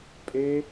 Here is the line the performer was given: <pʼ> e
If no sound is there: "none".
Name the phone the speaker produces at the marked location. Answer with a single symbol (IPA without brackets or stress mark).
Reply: pʼ